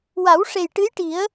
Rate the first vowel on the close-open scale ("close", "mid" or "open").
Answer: open